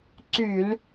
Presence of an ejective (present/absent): absent